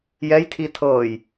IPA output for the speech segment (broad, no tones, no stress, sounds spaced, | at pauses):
j ɛ j tʰ i tʰ ɤː j